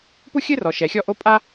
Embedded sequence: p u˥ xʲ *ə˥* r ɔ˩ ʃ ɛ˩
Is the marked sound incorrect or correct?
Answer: incorrect